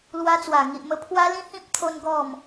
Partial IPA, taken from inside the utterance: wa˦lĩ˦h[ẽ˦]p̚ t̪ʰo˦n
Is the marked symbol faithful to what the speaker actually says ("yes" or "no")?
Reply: no